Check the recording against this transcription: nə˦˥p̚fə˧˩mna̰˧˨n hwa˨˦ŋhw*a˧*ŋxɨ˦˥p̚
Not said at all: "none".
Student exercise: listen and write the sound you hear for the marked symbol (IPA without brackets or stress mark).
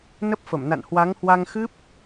a˧